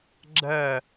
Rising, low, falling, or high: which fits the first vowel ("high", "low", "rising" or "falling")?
falling